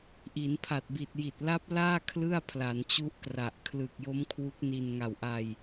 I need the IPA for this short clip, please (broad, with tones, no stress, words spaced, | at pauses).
ʔi˩˦npʰa˨˩t̚bi˨˩t̚ ji˨˩t̚la˦˥p̚laː˥˩ kʰlɯ˥˩a̯ pʰla˩˦nt͡ɕu˦˥ʔkra˨˩ʔ kʰlɯ˨˩k̚jo˦˥m kʰwu˦˥k̚ni˧n ŋa˨˩wʔa˧j